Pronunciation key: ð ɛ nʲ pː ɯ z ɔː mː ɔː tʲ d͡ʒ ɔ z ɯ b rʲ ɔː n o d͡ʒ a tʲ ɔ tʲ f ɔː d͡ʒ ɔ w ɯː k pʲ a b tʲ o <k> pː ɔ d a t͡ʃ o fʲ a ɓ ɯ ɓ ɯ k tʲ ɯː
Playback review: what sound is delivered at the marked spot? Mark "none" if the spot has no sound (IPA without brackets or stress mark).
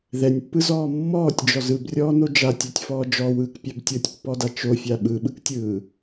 tʲ